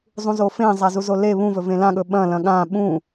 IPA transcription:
zˤ ũ z o f ẽ zˤ a z u z o l e β ũ v ɵ v ẽ l ã ɠ ɵ ɓ ɐ̃ l ɐ̃ ɠ ã ɓ ũ

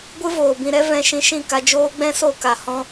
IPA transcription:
ɡʷ ɨ˦ v oː˨ b ĩ˧ ɾ ɛ˦ v ɛ̃˧ ʃ ĩ˧ ʃ ĩ˦˨ k a˧ d͡ʒ oː˦ ɡ͡b ɛ̃˦ s o˦˨ k a˨ h ɔ̃˦

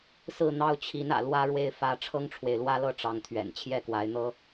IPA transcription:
s ɹ̩˥˨ n̪ ɑ˦ ʊ̯ t͡ɕʰ i˨˦ n ä̰˨˩ l w ä˦ ɻ w e˦ ɪ̯ f ä˦ ʈ͡ʂʰ ɤ˦ ŋ ʈ͡ʂʰ w e˨ ɪ̯ l w ä˦ l ɤ˥˨ ʈ͡ʂ ɑ˦ ŋ t̪ʰ ɥ ɛ̰˨˩ n t͡ɕʰ j ɛ˥˨ k w a˨˦ ɪ̯ n̪ ɤ˦

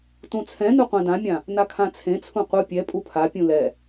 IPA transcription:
t ũ t͡sʰ ɛ̃ n u qʷ ã d ã mʲ ã | n a kʰ ã t͡sʰ ẽ t͡sʰ ũ qʷ ɯ pʲ ɛ pʼ u pʰ a pʲ ũ l ɛ

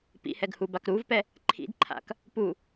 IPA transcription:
p ḭ h ɛ ɡ h u b a k ɾ u v p ɛ | ǃʰ ḭ d ǃʰ a̰ k | p u

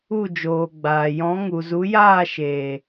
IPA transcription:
u˦˨ d͡ʒ oː˨ ɡ͡b aː˨ j ɔ̃˨˦ ŋ u˨ z u˨˦ j aː˦˨ ʃ eː˨

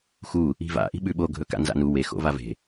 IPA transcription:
x u | i̤ v a̰ ʔ i̤ ɓ ʉ ɓ o ɡʱ ɵ k a̰ n z a̰ n u w e x o̰ v a v e̤

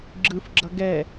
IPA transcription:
ɡ͡ǁ ɯ f ɡ͡ǁ ʌ ɡ ɛ

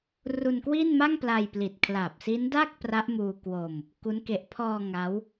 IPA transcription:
r u˧ n k w i˥˩ n m a˥˩ ŋ p l a˧ j p l i˨˩ t̚ kʰ l a˨˩ p̚ s i˦˥ n d a˥˩ k̚ p r a˦˥ ʔ m uː˧ k w o˧ m | k u˦˥ n k e˨˩ ʔ pʰ ɔː˧ ŋ a˦˥ w

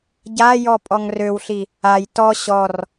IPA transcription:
ɟ a j ɔ pʼ ɔ ŋ r ø w ɬ i | a j t ɔ ɕ ɔ r

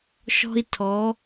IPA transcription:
ʃ ɔ̤˧ i̯ tʰ ɔ˩˧

